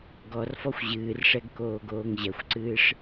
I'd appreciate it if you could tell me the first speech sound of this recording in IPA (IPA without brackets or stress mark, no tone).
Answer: ɡ